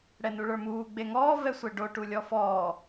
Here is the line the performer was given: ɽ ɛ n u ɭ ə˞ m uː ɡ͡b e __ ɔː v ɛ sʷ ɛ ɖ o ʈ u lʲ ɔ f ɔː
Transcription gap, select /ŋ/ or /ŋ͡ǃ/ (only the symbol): ŋ